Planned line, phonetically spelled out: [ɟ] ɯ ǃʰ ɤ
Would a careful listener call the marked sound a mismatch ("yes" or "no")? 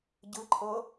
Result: no